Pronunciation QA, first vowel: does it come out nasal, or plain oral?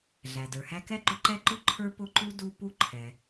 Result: oral